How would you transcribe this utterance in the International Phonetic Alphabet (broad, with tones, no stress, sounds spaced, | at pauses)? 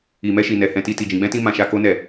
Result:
i˨ m ɛ˧ ʃ i˨ n ɛ˨ h ɛ̃˧ t i˧ t i˨ d͡ʒ ĩ˨ ɡ͡b ɛ̃˧ t ĩ˧ m ã˧ ʃ a˧ k o˦ n ɛ˦˨